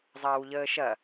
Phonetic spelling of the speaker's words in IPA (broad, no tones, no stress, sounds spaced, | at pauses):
zˤ ɐː w ʎ əː ʃ ɐ